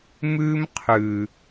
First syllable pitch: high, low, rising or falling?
high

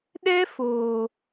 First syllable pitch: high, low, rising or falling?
high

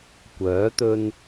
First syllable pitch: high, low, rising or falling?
rising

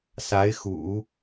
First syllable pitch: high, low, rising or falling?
rising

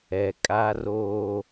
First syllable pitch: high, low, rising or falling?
low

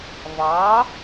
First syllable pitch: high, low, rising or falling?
rising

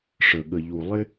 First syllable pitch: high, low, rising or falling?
low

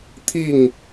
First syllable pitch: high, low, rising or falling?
falling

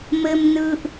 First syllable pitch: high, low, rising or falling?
high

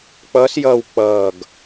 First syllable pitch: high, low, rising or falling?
rising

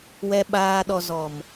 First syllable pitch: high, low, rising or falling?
low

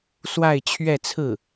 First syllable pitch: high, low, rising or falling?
falling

